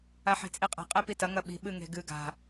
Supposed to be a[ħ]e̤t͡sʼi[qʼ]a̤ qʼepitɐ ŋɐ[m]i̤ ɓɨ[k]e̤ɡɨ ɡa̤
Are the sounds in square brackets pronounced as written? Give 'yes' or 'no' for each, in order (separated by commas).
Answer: yes, yes, no, no